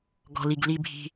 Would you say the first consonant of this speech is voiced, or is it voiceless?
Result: voiced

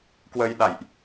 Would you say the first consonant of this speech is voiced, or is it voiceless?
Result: voiceless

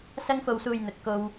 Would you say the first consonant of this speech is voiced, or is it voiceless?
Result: voiceless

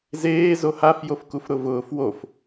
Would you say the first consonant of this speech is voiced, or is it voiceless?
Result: voiced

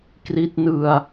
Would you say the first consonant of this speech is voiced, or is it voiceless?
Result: voiceless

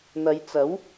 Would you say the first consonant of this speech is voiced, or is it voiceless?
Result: voiced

